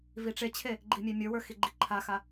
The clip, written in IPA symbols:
viʈ͡ʂet͡ɕʰe | ɡ͡ǃimʲemʲə˞wə˞ xiɡ͡ǃiǃʰaxa

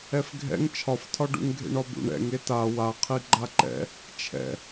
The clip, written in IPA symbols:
ɛfɡʱɛ̰ŋ t͡ʃʰɒftʰɒɖṵŋ ɡʱḛɳɒbṵɳ ɛ̰ŋ eta waqʰi ɡ͡ǃaǃɛ̰ | t͡ʃʰɛ̰

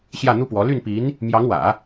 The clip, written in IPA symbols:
ɕjä˥˩n̪u˥pwɔ˧˥ ly˥˩npi˧˥n | mjɑ˧˥ŋwä̰˨˩˦

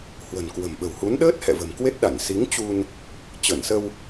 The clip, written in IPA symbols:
hwə̤˨˩nkwə̤˨˩mɓə̤˨˩whu˨˦n ɗəː˦˥t̚hɛ̰˧˨ və̤˨˩mkwe˦˥t̚ɗa˧˩n si˨˦ŋt͡ɕu˧n | t͡ɕə˧˩nsə˧w

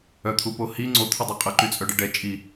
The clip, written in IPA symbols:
œt̪ʰupo hi ŋ͡ǀot̪ʰədˤɛ qʼəǃyt͡sʼœɖə ɖɛ t͡ʃʼi

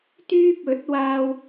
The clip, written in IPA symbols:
t̪yː˥p̚ɵ˨˥t̚waː˧w

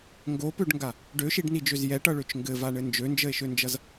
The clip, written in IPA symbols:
ŋɡopøɖŋɡa | ɖøʃiɖnid͡ʒøz jɛʈʌɭøt͡ʃ ŋɡɘvaɳɘ nd͡ʒønd͡ʒəe̯ʃønd͡ʒʌz

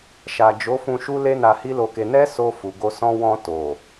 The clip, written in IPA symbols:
ʃa˨d͡ʒo˨˦fũ˧ ʃu˦le˦ na˧hi˦lo˧ke˧ nɛ˦so˧fu˨ ɡo˧sɔ̃˦ wɔ̃˧to˨

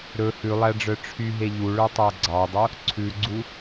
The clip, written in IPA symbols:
ɾɵ hʉlˠæɖ͡ʐœ ʈ͡ʂʰyɦe ʎuɭœtˤæ ɡ͡ǀɑdˤo | ǀʰʉɡ͡ǀu

